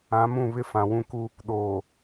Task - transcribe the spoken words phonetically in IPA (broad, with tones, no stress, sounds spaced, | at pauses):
ã˨˦ m ũ˦˨ β ɪ˦ f ã˨ w ũ˦ k u˦ | ɗ oː˨